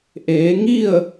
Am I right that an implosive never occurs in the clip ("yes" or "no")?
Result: yes